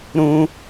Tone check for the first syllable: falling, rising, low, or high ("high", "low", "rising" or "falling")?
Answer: high